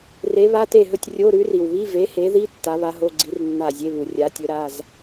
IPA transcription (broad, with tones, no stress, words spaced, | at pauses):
re˨˥βa˧˥˧te˥˩ɦɵ˥˩tʲ rʲo˧˥˧ ɾʉ˨˥ri˩w βi˧˥˧ve˨˥he˨˥ði˧˥˧ tːa˨˥βa˨˥ɦo˧˥˧ɡ͡ǀi˨˥r nːa˥˩ zʲe˧˥˧βu˩ rʲa˨˥tʲɵ˨˥ɾa˧˥˧z